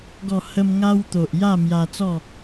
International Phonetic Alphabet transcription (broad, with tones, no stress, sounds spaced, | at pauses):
ɡ ɔ˨˩ h ə˧ m ŋ a˧ w t̪ o˨ ʔ j a˥˧ m j a˧ t͡s ɔ˥˧